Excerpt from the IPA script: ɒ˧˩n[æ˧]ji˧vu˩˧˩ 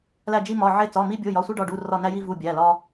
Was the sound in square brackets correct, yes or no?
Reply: yes